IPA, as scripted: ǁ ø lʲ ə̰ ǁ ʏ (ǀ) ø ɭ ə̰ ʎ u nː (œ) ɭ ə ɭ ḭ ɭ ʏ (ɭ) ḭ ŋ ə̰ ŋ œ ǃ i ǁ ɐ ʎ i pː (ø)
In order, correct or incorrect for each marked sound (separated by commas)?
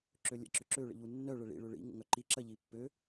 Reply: incorrect, correct, correct, correct